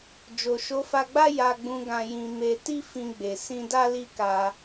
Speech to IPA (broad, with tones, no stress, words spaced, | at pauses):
d͡ʒo˨ʃo˨˦fa˧ɡ͡ba˦ ja˧ɡ͡bũ˧ ɡã˧jĩ˧ me˧ ti˦ fĩ˧ɡ͡be˨ sĩ˧da˦li˦ka˧